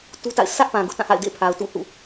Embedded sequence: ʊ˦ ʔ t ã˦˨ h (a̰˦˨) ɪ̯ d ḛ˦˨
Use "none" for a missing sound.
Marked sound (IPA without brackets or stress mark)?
a̰˦˨